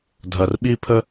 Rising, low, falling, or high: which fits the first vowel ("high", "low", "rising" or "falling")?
low